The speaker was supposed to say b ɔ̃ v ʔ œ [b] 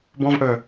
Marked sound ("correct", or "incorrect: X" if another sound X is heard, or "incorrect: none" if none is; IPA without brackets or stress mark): incorrect: none